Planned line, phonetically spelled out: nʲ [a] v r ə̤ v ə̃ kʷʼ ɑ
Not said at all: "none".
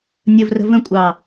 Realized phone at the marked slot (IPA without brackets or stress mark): ə